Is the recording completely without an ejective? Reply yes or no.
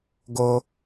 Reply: yes